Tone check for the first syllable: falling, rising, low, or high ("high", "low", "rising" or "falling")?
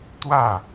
falling